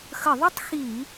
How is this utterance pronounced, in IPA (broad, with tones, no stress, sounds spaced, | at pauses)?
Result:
x ə˧˩˧ ðˤ y˥˧ tˤ x i˧˩˧